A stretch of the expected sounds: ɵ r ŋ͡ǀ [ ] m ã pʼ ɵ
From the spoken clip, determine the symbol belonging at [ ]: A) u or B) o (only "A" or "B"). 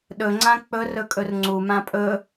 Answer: A